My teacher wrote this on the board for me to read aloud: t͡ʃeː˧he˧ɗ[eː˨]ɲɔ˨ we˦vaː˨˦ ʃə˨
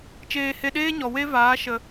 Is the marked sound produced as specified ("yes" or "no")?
no